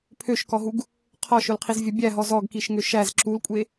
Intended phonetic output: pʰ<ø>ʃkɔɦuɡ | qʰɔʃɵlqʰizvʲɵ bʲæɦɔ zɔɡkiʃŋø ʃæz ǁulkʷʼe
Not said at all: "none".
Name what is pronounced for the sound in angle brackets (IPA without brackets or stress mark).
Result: ø